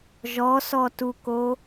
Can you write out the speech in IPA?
ʒ ɔ s ɔ t u k o

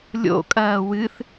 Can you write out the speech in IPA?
lʲ o̰ kʼ ɐː w ɨ θ

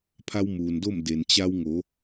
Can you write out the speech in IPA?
pʰ a˧ w m uː˩ n d o˥˨ m d e˩ n t͡ɕ a˧ w ŋ o˩˧

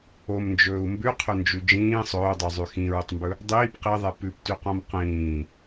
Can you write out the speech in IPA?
o m n d͡ʒ ɵː u̯ m b ʉ qʰ ɵ n d͡ʒ ʉ d͡ʒ ĩː sˤ ɵː dˤ ʉ zˤ ʉ x ĩ ɹ ɵ tˤ m b ɵ | dˤ iː p q i ðˤ ɛ p ʉ p t ʉ q õ m q ĩː

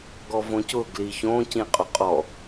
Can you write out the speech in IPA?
ɡ ɔ v õ c ʊ ɡ l i ç õ c ĩ qʼ o qʼ ɔ

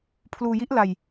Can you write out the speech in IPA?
pʰ l uː˧ j i˦˥ ʔ l a˧ j

